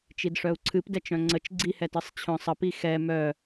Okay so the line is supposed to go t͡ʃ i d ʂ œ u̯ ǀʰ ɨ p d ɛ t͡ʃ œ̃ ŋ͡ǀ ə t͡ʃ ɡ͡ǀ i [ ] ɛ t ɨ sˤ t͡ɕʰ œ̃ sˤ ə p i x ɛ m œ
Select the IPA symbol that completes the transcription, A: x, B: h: B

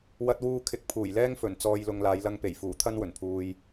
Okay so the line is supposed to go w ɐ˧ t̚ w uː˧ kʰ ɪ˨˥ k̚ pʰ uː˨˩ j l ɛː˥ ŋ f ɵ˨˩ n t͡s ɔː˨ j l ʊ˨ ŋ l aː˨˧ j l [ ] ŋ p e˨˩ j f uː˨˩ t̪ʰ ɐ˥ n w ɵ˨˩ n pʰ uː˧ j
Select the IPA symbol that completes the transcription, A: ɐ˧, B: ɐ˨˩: A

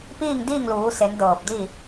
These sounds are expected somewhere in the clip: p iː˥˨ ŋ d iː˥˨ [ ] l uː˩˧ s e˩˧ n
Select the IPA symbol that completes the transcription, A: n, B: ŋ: B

